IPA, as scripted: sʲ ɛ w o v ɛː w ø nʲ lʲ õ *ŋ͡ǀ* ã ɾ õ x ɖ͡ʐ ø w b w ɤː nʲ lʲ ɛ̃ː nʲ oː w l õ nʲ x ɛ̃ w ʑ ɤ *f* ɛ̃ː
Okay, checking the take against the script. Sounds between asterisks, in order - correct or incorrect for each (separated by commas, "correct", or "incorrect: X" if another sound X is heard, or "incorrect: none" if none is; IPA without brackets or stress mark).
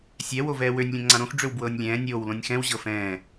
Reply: correct, correct